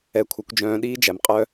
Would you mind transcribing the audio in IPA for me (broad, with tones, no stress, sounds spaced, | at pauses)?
ɛ˨ kʷʰ œ˨ kʷ d͡ʒ œ̃ː˨ ɗ iː˦ d͡ʒ æ˨ m qʼ œ˦